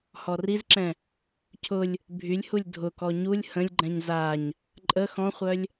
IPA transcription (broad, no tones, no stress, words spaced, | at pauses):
hɔrizǁɛ̃ | cʰʊlʲ | bʱylʲhulʲ dʱʊkɔ ɲulʲ hə̃lʲɡ͡ǃɛ̃ɲ zaɲ | ǃʼə xɔ̃χʷœlʲ